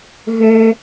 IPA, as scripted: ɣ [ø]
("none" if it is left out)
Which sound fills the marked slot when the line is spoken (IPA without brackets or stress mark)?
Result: ø